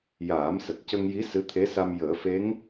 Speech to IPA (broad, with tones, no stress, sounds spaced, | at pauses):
j aː˨˩˦ m s ə˨˩ k̚ c ə˧ ŋ j i˧˥ s ɨ˧˥ t̪ʰ e˧˥ s a˧ m j əː˨˩˦ f e˧˥ ŋ